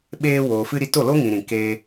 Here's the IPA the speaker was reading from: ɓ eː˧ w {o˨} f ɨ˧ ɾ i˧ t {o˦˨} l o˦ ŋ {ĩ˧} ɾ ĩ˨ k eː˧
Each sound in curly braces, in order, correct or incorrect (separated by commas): incorrect, correct, incorrect